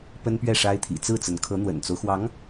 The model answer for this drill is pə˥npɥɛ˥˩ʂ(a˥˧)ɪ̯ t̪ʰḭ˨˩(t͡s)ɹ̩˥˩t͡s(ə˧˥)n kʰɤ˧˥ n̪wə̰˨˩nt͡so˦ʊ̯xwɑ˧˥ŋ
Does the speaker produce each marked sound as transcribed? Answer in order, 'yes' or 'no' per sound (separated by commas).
no, yes, yes